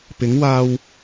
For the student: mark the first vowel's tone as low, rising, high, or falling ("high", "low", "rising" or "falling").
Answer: rising